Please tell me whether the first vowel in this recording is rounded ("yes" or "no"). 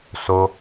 yes